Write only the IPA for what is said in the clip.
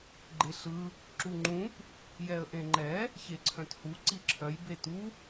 ɡ͡ǃ e ɬ ɯ | ǁ u ŋ͡ǃ ũ p | j ɛ ə̯ ʔ ẽ ŋ͡ǃ ɛ | ç e ǀʰ œ̃ t h u ǀ i ǁʰ œ j b e t u

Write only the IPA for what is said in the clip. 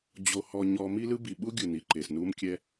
d͡ʑ o˧ h ɔ˧ ɲ ɔ˦ m i˦ l ɯ˦ b i˨ ɓ u˦ ɡʲ ɯ˨ n i˨ ǃ e˨ s n u˦ m kʲ ɛ˦

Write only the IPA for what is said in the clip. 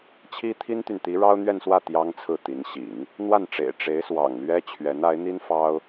t͡ɕʰ i˥ t̪ʰ i˥ n t̪ y˨ n t̪ i˧˥ ɻ ɑ˥ ʊ̯ n̪ ɥ ɛ˥˧ n s w ä˥˩ t̪ j ɑ˥ ŋ t͡sʰ ɹ̩˥˩ t̪ i˧˥ n ɕ ḭ˨˩˦ ŋ | n̪ w a˥˩ n ʈ͡ʂ ḛ˨˩ ɪ̯ ʈ͡ʂ e˧˥ ɪ̯ s w ɑ̰˨˩ ŋ l ɥ ɛ˥ t͡ɕʰ ɥ ɛ˧˥ n a˧˥ ɪ̯ n̪ i˥ n f ɑ˥ ʊ̯

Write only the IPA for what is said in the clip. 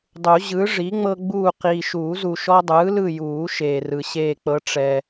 dˤ u˨˩˦ ʑ ɯ˩˥ ʐ i˩˥ ŋ͡m ɤ˦ ɡ͡b uː˦˨ q iː˨ ʃ uː˨˩˦ z u˨ ʃ ɔ˦ dˤ ɯː˩˥ l ɯ˦˨ j uː˨˩˦ ʃ eː˨ r ɯ˨ ɕ eː˦˨ k͡p ɤ˦ ʈ͡ʂ ɛ˨

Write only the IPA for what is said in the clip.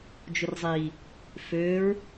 d͡ʒ ʊ r zˤ i | f ø ɹ

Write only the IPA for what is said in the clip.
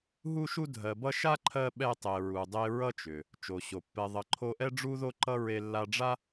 ɦ u˦ ʃ u˦ dʱ ɜ˨ b ʌ˦ ʃ a˥ ǃʰ ɜ˦ ɓ ɛ˦ tˤ e˨ ɹ u˨ dˤ e˦ ɹ ʌ˥ t͡ʃ ʏ˩ | t͡ʃ o˩ ɕ o˩ pː ɛ˨ ðˤ ʌ˨ ǃʰ o˦ ʔ ɛ˥ ɖ͡ʐ u˥ ð o˥ ǃ ʌ˥ ɹ e˦ lː a˦ ɖ͡ʐ a˥

